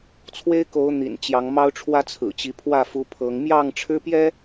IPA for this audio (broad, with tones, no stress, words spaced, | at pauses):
t͡sʰwe˦ɪ̯ko˨˦ʊ̯ n̪ḭ˨˩nt͡ɕjɑ˨˦ŋ mɑ˦ʊ̯ʈ͡ʂʰwä˦ t͡sʰɹ̩˨˩t͡ɕi˨˦pʰwä˥˨ fu˨˦ pʰɤ˨˦ŋ mjɑ˥˨ŋʈ͡ʂʰɻ̩˦pjɛ˦